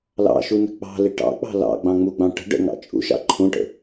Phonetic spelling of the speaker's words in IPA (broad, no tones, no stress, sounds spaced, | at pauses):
l ɑ̰ ʃ u n ə̤ k͡p ɑ̤ l ɪ ʈ ɑ̰ k͡p ɑ̤ l ɑ̰ ɡ͡b ɑ̃ ŋ͡m u ɡ͡b ɑ̃ ʈ ə̤ ɖ ə̰ ŋ ɑ̰ t͡ʃʼ ṵ ʃ ɑ̰ ǃʰ ũ ʈ ə̰